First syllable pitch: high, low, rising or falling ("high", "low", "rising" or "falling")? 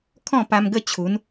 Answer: falling